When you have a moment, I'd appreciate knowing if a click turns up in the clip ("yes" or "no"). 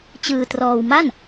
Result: no